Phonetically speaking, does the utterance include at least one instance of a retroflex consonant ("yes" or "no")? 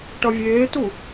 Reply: yes